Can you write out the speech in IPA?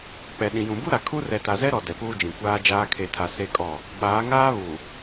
k͡p ɛ˨ ɗ ĩ˨ j ũ˨ b u˦ ɾ a˨ kʰ u˦ r ɛ˨ t a˨ z ɛ˦ ɾ ɔ˨ d ɛ˨ p uː˦ d͡ʒ ĩ˨ kʷ aː˦ d͡ʒ aː˦ kʰ e˨ tʰ a˨ s e˦ kʼ ɔ˦˨ | ɓ aː˨˦ ŋ aː˦ β u˨

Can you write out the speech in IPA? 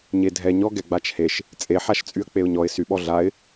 ɲ e dʱ ɛ ɲ ɔ ɡ ɛ ɡ͡b a t͡ʃ h e ʃ | t͡sʼ e ħ a ʃ t͡sʼ y ə̯ k͡p e ʊ̯ ɲ ɔ ɪ̯ s y ɓ ɔ ɮ a ɪ̯

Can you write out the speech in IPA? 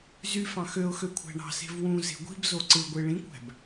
z y f ɑ̃ x ø ʊ̯ x ø kʷʰ æ̤ ɳ ɑ̤ s e̤ v w ũ z e̤ ɡʷ i̤ b z o ǀ ɯ ɡʷ e ɭ ĩ kʷ æ̤ b

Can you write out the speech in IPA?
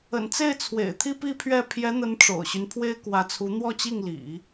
ə̰˨˩ n t͡s e˥˩ ɪ̯ t͡sʰ w ḛ˨˩ ɪ̯ t̪ʰ i˥ p i˥ pʰ ɥ ɛ˥˩ pʰ j ɛ˧˥ n̪ ə˧˥ n ʈ͡ʂ o̰˨˩ ʊ̯ ɕ y˦ n pʰ w e˥ ɪ̯ k w ä˧˥ t͡sʰ u˧˥ n̪ w ɔ˥˧ t͡ɕ i˥˩ ŋ l ḭ˨˩˦

